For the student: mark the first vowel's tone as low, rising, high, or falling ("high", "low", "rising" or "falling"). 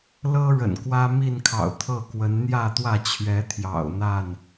high